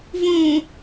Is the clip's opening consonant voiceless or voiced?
voiced